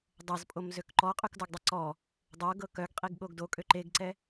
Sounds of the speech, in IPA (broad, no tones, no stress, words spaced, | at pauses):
dˤɤzpʼomzøk ǃɔqʼʉkdɔɡdˤe ǀɔ | dˤɤɡɤ kœɡqʼiɡɠoɡ dokʼø ǃeɡǀɛ